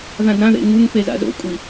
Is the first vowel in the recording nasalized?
yes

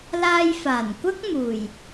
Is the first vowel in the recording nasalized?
no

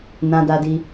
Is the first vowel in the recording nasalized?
yes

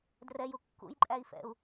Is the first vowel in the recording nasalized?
no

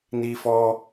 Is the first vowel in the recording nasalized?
no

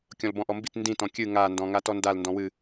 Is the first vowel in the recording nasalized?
yes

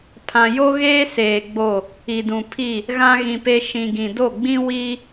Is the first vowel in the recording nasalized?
yes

